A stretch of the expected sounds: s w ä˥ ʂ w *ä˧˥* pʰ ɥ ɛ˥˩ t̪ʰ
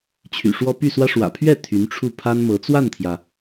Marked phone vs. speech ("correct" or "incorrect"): incorrect